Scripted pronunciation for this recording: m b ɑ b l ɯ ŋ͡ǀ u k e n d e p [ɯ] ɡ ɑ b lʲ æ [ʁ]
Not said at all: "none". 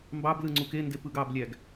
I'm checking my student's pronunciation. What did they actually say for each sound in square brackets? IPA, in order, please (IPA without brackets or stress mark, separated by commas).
ɯ, ɡ